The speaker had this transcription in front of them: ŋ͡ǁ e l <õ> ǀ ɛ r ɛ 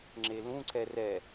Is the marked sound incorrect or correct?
incorrect